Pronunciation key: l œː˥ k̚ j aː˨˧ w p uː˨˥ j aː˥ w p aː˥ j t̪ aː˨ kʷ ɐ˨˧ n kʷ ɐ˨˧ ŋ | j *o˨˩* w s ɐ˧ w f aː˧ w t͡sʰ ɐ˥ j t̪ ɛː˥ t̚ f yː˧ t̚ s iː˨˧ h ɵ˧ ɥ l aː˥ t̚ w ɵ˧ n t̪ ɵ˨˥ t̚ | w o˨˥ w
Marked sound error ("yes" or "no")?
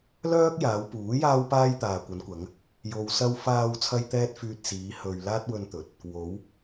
yes